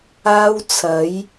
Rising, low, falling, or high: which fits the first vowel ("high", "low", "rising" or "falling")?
high